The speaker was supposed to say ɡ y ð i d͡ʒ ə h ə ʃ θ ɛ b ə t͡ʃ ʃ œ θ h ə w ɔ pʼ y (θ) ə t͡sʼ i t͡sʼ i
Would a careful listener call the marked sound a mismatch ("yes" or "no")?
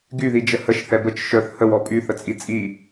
no